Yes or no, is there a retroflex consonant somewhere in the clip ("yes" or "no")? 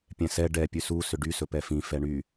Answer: yes